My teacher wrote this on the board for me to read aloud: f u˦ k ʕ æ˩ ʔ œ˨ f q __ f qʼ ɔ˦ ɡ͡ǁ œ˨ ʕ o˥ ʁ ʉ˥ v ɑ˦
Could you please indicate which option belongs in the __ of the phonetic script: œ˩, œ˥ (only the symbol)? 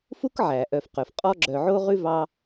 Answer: œ˩